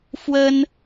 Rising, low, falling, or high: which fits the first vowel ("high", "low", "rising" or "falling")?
high